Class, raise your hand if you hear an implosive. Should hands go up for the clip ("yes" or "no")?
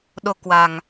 yes